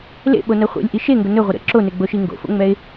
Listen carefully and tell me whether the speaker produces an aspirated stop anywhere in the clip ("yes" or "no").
no